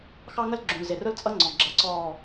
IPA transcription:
x ɑ˦ ŋ ə˦ l ɡ͡ǁ ũ˨ l z ɪ˨ r ʊ˦ l t͡sʼ ʌ˦ ŋ͡ǀ ɔ̃˨ ɡ͡ǁ ʌ˨ ǀ ɔː˨

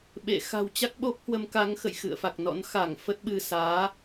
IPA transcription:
ɓ ḛ˧˨ x a̤˨˩ w t͡ɕ a˦˥ k̚ ɓ o˦˥ p̚ h w ə˨˦ m k a˨˦ ŋ x ə̰˧˨ j x ɨ̰˧˨ ə̯ f a˨˩ k̚ n ɔ̰˧˥ n x a˧˩ ŋ f ə˦˥ t̚ ɓ ɨ˧ s aː˨˦

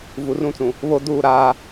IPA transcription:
v u˨ r ũ˦˨ t͡s ũ˨ | β o˦ d uː˦˨ ɾ aː˦

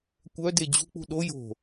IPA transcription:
kʷ œ d e d͡ʑ ṳ k͡p ṳ ɗ o j o̤

